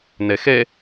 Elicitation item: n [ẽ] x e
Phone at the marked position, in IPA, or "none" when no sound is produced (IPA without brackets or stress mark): e